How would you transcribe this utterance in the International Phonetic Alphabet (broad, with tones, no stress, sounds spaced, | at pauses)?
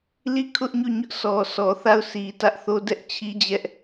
l i˦˨ kʰ ʊ˦ ʔ ɲ o˦˨ ɲ ʊ˦ ʔ s ɔ˨ sʰ ɔ˨ θ a˦˨ ʊ̯ s i˨ t ä˦ ʔ θ o˦ d ɛ˦ ʔ t͡ɕʰ i˦ d͡ʑ ɛ˦ ʔ